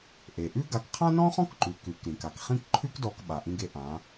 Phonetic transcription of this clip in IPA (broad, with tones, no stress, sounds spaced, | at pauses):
ʔ e˩ ʔ ʉ˥ ɡ a˧ k qʰ ã˥ n ɔ̃˥ χ ɔ̃˥ k ǃ ʉ˩˧ k ʉ˩˧ k ɾ ĩ˩ k a˩ k χ ĩ˥ k ǃʰ ʉ˥ k d ɔ˧ k ɓ a˩ ʔ ĩ˧ ɡ e˧ ʔ ã˩˧